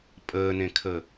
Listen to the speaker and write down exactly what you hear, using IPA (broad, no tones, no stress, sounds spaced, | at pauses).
pʼ əː n ẽ kʰ ə